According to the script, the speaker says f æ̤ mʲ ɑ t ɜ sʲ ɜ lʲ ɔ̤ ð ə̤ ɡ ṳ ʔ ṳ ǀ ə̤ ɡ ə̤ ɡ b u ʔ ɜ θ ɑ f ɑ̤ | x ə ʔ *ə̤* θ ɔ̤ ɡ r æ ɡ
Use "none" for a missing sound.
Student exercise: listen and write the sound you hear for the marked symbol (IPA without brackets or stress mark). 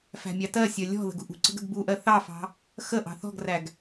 ɑ̤